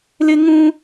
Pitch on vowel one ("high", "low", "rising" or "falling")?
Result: high